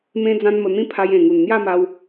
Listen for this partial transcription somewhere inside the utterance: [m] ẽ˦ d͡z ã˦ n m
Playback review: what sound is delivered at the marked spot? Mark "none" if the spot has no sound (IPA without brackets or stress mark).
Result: m